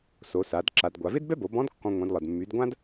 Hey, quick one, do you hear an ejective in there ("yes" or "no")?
no